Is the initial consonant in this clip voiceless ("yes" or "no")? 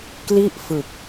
yes